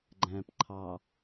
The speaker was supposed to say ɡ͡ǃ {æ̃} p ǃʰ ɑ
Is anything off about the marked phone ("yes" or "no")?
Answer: no